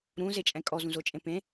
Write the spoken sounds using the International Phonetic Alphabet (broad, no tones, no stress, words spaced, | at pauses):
ɾũzet͡ʃʼɛ̃ kʼɔzũzot͡ʃʼẽ pẽ